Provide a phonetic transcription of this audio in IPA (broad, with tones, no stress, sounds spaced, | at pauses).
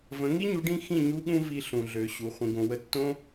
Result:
v ə̃˨˦ ŋ i˦ ɲ u˨˦ ɖ ĩ˦ x ĩ˦˨ ɲ u˦ ɠ ũ˦ v i˧ ɬ ũ˨ ɮ ø˨ ɕ u˨ χʷ ĩ˨ ɡ õ˨ w ə˧ tː õ˦